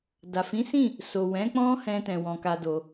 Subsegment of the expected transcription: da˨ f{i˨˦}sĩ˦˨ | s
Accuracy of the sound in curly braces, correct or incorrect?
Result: incorrect